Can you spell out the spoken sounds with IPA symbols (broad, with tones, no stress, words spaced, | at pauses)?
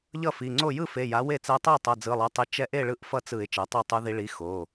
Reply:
ʎʌ˥˩fi˩˧˩ŋ͡ǀo˥˩ jɯ˥˩fe˩˧˩ ja˩˥we˥˩t͡sɛ˧˥ tˤɛ˥˩tˤʌ˩˧˩ d͡zɯ˩˧˩lˠɛ˩˥tˤi˩˥ t͡ʃɛ˧˥ʔe˥˩ ɭɯ˥˩ʔfʌ˥˩t͡sɯ˧˩˧ɪ̯ t͡ʃɛ˩˥tˤo˥˩tˤu˧˥ði˧˥ ɭi˩˥ xo˩˧˩